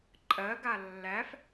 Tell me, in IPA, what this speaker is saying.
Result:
ǃʼ ɜ ɡ a lː æ f

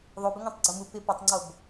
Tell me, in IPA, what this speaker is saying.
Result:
ðˤ o b ɪ ŋʷ ɛ̃ tˤ ɡ͡ǀ o m u p ɪ p ɵ tˤ ŋ͡ǀ o b

